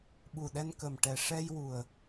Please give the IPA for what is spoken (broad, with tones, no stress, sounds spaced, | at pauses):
ɓ u˨˩ ɗ ɛ˧ n k ə˨˩ m ʈ ɛ˨˩ ʂ ɛ˧ j w u˨˩ ə̯